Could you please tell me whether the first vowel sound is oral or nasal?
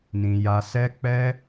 nasal